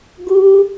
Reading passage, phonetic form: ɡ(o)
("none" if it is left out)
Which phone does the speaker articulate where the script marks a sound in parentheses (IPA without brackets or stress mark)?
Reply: u